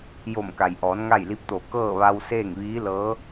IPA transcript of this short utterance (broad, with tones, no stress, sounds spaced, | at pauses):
j o˧˩ m k a˩ j ʔ ɔː˩˧ n ŋ a˥˨ j l i˧˥ p̚ t̪ o˧˩ k ɤː˥˨ ʋ a˧ w s eː˥˨ ŋ ʋ iː˧˥ l ɤː˧˥